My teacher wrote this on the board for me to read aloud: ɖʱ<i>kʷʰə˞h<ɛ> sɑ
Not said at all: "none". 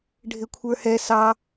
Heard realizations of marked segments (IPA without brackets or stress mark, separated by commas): ɪ, ɛ